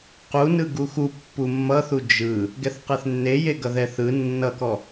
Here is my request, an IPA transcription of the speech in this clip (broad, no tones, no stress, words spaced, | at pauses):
qu nɯɡuxu pːumːʌθu d͡ʒɯ | ɡɛθqɛθnːeje ɡʌðɛθɯ nːʌkɔ